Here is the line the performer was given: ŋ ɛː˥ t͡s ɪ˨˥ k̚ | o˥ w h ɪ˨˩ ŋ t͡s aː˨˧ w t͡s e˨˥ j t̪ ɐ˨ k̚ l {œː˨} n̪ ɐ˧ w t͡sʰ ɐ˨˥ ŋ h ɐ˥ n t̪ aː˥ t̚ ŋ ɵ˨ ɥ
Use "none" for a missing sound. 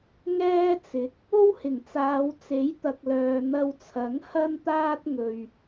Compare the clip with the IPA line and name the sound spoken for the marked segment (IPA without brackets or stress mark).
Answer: œː˨